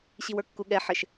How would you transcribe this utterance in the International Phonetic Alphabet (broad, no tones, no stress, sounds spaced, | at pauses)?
ɕ i w ə˞ kː u ɠ ɛ ħ ɘ ʃ